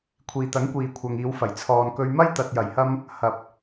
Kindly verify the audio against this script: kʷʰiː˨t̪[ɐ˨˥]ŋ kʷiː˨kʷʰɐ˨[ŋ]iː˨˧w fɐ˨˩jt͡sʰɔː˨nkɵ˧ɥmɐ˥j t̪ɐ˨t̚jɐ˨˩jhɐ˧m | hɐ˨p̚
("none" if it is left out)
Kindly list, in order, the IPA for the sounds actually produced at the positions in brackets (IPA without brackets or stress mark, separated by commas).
ɐ˨˥, ŋ